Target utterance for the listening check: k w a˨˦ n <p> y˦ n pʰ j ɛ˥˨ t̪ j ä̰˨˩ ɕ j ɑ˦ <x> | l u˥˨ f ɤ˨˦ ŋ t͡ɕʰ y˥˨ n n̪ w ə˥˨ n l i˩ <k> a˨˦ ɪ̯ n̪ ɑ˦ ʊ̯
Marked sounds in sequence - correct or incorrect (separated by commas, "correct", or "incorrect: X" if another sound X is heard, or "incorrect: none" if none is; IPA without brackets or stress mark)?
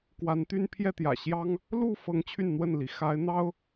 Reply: incorrect: t̪, incorrect: ŋ, incorrect: x